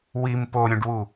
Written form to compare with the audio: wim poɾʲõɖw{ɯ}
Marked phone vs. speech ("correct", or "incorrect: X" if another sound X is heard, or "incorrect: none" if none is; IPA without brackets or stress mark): incorrect: u